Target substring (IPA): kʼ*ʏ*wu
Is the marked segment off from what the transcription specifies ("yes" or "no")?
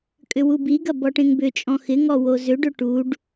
no